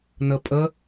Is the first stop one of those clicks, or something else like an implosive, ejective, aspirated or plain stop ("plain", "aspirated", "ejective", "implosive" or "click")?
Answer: ejective